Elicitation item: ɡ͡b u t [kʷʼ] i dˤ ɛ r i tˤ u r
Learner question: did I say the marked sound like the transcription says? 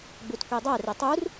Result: no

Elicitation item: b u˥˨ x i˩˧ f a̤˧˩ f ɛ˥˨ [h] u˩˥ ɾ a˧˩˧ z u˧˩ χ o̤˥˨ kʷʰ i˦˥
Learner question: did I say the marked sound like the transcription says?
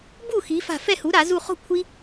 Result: yes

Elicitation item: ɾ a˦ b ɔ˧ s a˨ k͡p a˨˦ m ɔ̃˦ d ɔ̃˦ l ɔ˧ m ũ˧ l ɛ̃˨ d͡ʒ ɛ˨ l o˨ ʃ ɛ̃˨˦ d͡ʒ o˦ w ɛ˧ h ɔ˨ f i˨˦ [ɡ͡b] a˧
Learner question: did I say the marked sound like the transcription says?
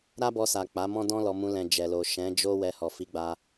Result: yes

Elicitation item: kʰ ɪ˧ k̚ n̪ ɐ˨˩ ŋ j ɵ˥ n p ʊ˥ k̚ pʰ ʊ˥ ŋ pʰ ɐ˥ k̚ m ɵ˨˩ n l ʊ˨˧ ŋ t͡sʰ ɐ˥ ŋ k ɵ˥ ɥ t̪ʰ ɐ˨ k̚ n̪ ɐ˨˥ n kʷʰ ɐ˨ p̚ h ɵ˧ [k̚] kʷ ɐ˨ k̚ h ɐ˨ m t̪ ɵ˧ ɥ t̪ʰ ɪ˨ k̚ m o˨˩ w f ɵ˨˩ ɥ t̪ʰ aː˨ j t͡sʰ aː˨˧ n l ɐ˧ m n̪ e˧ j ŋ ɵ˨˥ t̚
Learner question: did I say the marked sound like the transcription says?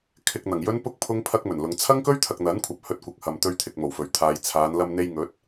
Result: no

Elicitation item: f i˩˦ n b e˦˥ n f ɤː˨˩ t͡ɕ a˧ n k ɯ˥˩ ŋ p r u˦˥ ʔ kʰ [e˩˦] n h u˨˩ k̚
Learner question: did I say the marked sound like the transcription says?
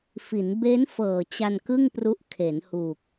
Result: yes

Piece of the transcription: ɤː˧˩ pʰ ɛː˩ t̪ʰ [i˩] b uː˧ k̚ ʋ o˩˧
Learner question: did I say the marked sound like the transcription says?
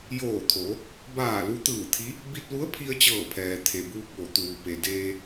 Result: no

